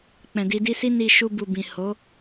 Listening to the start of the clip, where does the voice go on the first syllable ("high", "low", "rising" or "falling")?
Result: low